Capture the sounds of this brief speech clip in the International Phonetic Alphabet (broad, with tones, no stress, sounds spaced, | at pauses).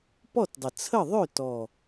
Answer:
p ɔ˥˨ t dˤ ə˨˩ t͡sʰ ə˥˨ ðˤ ø˥˨ t ɔ˨˩